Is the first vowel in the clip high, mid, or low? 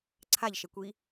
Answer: low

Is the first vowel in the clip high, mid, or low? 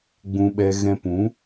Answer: high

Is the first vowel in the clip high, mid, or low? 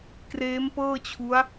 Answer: mid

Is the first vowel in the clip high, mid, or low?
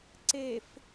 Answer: mid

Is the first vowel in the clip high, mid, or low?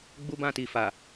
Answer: high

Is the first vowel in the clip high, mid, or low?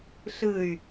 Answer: high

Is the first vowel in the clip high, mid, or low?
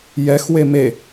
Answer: mid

